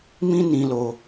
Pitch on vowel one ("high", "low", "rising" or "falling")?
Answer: high